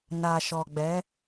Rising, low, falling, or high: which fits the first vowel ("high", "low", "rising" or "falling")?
low